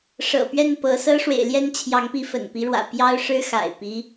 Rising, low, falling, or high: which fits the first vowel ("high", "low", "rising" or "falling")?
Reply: low